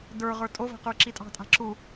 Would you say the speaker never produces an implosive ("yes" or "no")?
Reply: yes